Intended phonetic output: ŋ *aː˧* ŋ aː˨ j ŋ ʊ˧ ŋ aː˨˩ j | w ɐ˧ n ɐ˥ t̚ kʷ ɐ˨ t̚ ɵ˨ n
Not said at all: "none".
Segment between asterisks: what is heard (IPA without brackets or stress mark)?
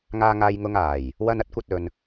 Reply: aː˨